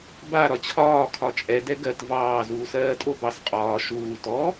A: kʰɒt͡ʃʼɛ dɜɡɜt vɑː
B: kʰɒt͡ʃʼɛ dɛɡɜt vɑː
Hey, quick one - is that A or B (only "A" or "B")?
B